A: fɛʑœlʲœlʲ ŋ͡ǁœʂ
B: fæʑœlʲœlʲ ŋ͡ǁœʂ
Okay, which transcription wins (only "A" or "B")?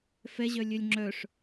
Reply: A